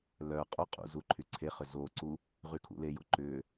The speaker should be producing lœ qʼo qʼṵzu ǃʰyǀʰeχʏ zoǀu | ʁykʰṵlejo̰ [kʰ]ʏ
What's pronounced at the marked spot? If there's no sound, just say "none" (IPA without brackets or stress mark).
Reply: ǃ